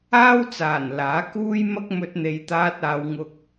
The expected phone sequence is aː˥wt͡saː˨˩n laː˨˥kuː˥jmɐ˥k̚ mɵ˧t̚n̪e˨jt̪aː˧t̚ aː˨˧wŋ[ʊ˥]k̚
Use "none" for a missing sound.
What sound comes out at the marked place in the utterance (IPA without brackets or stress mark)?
ʊ˧